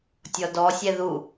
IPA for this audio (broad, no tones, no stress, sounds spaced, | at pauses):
tʲ ɔ d ɔ sʲ ɛ ð u